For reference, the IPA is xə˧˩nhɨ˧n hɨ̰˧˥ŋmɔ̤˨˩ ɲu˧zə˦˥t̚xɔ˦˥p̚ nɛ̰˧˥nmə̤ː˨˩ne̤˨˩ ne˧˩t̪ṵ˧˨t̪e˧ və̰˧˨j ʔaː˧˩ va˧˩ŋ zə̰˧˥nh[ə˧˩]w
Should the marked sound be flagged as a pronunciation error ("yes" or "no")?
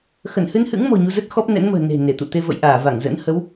yes